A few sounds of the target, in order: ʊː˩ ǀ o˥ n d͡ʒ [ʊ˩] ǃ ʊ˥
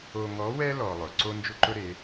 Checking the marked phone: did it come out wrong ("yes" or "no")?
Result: yes